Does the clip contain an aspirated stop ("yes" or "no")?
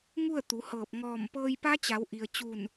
no